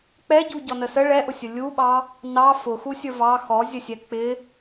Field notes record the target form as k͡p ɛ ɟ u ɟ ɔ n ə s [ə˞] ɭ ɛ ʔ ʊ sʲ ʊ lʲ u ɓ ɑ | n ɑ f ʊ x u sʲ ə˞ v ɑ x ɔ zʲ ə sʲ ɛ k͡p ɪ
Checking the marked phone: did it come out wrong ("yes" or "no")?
yes